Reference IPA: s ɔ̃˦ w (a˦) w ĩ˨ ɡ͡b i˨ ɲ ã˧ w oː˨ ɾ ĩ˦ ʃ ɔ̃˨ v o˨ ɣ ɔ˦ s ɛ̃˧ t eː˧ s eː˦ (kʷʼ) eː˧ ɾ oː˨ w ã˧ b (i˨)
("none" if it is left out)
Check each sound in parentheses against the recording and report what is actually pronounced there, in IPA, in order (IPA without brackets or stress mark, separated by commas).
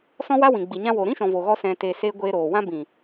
a˦, ɡʷ, ĩ˨